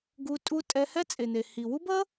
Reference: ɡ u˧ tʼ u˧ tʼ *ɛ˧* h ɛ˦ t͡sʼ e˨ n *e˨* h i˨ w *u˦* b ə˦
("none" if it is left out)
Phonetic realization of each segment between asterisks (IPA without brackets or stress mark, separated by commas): ɛ˧, e˨, u˦